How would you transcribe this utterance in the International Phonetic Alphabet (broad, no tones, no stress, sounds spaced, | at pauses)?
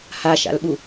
h a ʃ a̰ l ɓ u